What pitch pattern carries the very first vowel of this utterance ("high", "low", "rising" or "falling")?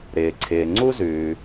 low